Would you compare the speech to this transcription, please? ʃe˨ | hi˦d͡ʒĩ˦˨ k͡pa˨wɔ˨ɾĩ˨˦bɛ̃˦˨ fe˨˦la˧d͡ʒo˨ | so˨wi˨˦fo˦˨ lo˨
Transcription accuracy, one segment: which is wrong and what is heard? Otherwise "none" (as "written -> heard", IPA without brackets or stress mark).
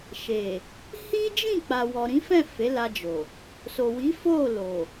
b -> f